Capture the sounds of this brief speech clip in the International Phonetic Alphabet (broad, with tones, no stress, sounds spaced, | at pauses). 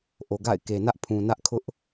ʔ o˨ ɡ a̰˦˨ ɪ̯ k e˨ n ä˦ ʔ pʰ ũ˨ n ä˦ ʔ kʰ ʊ˦ ʔ